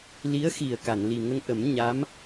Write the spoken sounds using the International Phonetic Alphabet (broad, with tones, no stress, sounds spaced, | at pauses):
l i˧˥ ə̯ x i˨˩ ə̯ k a˨˩˨ n l i˨˩ ŋ ə˧ ŋ ʔ ə˨˩˦ m ɲ a˧˥ m